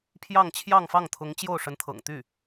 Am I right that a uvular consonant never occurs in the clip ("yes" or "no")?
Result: yes